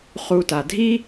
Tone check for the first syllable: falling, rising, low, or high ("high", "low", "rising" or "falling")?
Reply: low